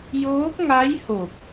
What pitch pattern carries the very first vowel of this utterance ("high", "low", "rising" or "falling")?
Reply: rising